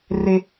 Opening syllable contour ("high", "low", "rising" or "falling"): high